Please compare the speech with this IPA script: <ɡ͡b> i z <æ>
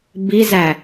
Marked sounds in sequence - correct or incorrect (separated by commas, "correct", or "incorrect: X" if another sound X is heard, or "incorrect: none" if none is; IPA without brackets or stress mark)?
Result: incorrect: b, correct